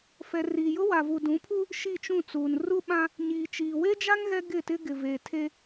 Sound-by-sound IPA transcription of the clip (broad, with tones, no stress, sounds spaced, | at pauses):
f ɛ˨ r iː˨ j ʊ˦ w a˨ v u˨ d ũ˨˦ pʰ u˦ | ʃ i˦˨ t͡ʃ ũ˦˨ t͡s uː˨ n r u˦ ɓ ã˦ | ɲ iː˨ t͡ʃ iː˨ w e˦ d͡ʒ a˦ ŋ ɣ ɛ˦ ɡ ɪ˦˨ t ɪ˦ ɡ ɪ˨ v e˨ tʰ e˦